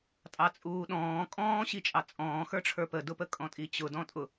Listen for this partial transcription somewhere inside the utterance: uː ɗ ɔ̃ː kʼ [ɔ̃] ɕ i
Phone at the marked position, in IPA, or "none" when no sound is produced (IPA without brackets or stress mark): ɔ̃ː